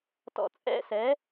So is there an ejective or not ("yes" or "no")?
yes